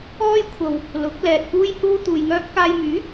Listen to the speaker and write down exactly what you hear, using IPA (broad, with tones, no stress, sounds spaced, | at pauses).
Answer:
ɔː˥ j kʷʰ ɐ˧ w | l ʊ˨˥ k̚ l ɛː˧ t̚ p uː˥ j h uː˥ t̪ uː˧ j ŋ œː˥ p̚ k aː˧ j m yː˨˥